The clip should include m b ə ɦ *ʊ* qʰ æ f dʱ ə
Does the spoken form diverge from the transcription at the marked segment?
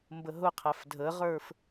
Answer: no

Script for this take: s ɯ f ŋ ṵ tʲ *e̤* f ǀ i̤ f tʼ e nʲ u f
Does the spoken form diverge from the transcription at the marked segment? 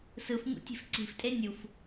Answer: no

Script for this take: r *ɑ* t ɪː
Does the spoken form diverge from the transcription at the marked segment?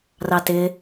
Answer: no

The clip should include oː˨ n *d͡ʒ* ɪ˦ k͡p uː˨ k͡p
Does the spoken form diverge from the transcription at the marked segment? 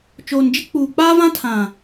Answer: no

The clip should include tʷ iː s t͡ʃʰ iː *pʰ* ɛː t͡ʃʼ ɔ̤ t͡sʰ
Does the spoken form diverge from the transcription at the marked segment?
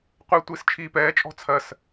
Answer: yes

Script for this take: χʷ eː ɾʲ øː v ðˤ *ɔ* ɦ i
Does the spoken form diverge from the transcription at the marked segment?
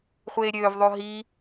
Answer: yes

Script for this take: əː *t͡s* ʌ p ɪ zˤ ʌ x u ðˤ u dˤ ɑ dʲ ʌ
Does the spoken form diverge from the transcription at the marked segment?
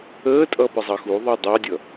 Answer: yes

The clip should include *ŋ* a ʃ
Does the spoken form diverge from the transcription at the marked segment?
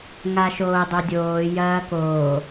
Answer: no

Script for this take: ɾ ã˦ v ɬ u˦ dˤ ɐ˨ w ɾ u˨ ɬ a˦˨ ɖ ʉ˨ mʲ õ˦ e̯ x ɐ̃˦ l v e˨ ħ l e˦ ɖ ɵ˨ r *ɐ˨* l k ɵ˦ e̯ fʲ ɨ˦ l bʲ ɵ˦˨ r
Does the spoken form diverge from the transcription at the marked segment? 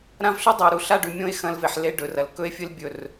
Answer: no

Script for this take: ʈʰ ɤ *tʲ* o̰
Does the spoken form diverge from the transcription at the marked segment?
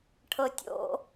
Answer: no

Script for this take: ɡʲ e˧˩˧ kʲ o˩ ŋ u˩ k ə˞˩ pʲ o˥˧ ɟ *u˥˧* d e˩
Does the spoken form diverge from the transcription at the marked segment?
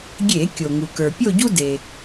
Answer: yes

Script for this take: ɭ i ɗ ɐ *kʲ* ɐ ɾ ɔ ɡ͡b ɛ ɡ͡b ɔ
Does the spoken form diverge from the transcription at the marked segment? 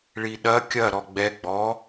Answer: no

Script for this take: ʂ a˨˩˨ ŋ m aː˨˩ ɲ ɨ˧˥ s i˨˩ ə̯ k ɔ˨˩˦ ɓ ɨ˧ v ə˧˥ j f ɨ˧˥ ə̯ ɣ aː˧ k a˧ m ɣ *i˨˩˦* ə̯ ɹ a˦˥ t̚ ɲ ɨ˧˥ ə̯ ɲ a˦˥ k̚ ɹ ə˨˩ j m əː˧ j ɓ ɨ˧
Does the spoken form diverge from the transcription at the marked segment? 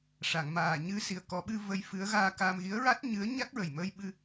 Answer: yes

